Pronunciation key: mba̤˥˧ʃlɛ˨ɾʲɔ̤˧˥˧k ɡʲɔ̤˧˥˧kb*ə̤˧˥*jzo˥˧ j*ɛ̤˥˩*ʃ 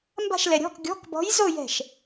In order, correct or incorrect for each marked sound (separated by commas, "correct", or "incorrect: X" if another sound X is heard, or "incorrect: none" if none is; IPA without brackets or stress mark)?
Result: incorrect: ɔ̤˧˥, correct